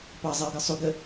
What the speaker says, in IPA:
pɑzˤɪʊ̯ɡə˞ sˤuɡə

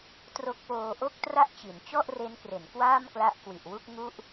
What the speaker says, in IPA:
tro˦˥k̚poː˧ʔo˥˩k̚tra˥˩ʔ t͡ɕi˩˦nt͡ɕɔ˥˩ʔre˦˥nkre˩˦n kwaː˥˩mkla˦˥ʔkwi˨˩ʔwu˥˩k̚ ŋu˥˩ʔ

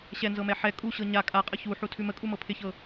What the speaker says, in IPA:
ɕɛnzɤmɛ ħɛ kʼuɕɤ ɲa kʼaqʼə çuħutʰʉ məkʼumɤ pʰɪçɤ

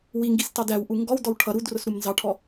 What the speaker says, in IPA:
wiŋɡistɑd æwʔu ŋɡɔwdɔw ʈʰʌ ɾudrʊsɾum nzɑʈʰɔ

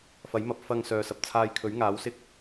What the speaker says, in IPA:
fɐ˨˥jmɐ˨˥p̚ fɐ˧ŋ sœː˨sɐ˨p̚t͡sʰaː˧j kʰɵ˨˥ɥŋaː˨˥wsɪ˧k̚

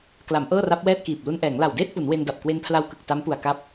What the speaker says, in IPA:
kla˩˦m ʔɤː˥˩ra˦˥p̚wɛː˥˩t̚kiː˨˩p̚ lu˧nʔɛː˩˦ŋ la˨˩wdeː˥˩t̚pu˩˦n we˧nda˨˩p̚ kwe˧npʰla˧wkɯ˨˩k̚ ta˦˥mpu˨˩a̯ka˦˥p̚

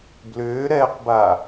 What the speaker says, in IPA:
blʏːɾɛːqba

